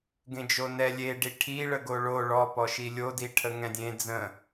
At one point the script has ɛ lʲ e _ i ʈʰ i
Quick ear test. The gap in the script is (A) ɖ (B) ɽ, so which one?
A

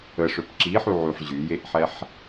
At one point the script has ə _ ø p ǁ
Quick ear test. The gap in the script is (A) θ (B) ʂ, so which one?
B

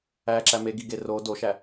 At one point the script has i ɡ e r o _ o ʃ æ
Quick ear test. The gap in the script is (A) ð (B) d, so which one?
B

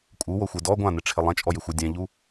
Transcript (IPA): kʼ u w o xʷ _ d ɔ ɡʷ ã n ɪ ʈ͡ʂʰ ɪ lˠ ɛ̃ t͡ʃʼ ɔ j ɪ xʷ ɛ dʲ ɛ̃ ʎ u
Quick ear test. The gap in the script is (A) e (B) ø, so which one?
A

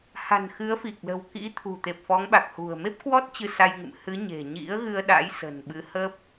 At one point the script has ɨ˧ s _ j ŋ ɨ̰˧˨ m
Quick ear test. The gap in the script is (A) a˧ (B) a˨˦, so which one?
A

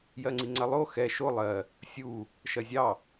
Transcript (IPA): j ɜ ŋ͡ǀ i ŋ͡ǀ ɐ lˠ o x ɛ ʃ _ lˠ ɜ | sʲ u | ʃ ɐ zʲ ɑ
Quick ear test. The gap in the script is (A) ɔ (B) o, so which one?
B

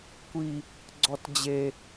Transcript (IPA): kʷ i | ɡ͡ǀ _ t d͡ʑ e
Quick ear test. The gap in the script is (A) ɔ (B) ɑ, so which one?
A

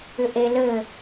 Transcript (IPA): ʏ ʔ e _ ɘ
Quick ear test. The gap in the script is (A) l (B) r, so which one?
A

